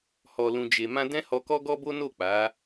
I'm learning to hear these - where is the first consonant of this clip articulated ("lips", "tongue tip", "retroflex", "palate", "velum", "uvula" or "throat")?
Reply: throat